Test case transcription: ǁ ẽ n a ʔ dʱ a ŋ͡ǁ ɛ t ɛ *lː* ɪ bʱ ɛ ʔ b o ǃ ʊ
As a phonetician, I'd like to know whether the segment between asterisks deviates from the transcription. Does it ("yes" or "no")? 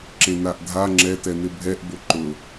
yes